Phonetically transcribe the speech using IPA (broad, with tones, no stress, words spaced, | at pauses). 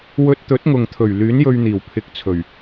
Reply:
wɵ˧t̚t̪ɵ˨˥t̚ ŋʊ˨ŋ t̪ʰɵ˨˩ɥ lyː˨˥njɵ˧ɥn̪iː˨˩w pʰɪ˨˥k̚t͡sʰɵ˨˩ɥ